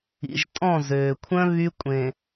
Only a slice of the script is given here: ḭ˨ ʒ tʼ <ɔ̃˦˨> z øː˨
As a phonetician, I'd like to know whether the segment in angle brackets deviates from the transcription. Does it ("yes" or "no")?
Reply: no